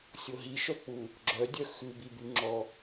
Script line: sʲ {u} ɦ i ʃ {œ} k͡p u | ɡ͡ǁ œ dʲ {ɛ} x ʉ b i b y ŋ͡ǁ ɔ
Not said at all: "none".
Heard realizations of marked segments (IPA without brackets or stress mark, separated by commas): o, œ, œ